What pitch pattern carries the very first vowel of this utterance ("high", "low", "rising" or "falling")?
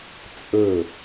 falling